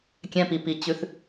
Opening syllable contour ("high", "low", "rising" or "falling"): low